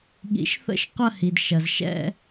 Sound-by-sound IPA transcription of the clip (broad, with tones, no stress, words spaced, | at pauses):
ɠḭ˨˦ʃθə̰˥˧ʃ qʷɐ˥˧hi˩dʃɐ˩z ʃɛ̰˥˧